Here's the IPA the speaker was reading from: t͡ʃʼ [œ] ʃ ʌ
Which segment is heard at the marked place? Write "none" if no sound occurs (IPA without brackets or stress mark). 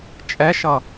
ɛ